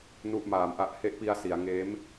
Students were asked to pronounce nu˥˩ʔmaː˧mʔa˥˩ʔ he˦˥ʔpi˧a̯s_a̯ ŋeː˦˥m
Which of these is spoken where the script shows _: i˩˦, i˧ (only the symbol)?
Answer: i˩˦